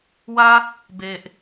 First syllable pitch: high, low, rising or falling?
high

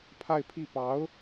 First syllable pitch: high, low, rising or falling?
falling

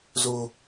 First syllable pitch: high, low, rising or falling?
high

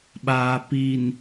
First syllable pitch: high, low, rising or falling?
low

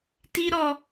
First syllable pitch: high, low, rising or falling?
high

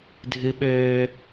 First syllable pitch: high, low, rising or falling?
high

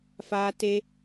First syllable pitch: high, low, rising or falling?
high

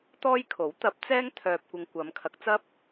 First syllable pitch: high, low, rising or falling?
high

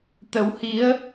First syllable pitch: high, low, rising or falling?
rising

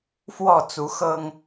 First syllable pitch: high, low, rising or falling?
falling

